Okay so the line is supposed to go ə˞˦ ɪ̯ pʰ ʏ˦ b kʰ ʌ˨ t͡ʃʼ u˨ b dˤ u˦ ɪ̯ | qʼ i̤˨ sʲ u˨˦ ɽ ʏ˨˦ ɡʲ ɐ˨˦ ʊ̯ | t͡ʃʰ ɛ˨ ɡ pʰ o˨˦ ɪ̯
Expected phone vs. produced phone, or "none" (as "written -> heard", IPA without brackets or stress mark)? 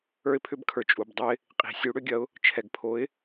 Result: ʌ˨ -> ə˞˨